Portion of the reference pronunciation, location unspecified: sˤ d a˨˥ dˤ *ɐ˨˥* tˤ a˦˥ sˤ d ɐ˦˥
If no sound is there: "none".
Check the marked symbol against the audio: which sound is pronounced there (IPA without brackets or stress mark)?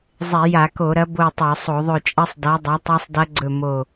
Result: a˨˥